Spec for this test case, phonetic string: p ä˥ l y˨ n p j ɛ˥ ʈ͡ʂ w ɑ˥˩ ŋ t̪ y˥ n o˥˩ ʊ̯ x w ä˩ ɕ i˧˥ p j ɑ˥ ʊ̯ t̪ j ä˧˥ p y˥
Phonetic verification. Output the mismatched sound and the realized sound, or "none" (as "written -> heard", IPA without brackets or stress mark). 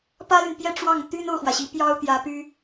none